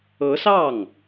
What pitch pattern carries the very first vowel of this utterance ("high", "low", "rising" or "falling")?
rising